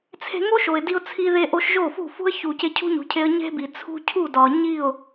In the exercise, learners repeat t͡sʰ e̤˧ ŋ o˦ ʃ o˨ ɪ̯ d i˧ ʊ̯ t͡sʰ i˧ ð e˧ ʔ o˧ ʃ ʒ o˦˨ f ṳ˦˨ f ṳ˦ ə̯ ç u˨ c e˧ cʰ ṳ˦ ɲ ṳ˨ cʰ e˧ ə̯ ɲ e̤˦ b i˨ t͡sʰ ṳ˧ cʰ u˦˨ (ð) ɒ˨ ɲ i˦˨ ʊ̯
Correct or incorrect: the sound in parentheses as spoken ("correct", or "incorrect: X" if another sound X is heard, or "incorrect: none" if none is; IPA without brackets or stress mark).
incorrect: d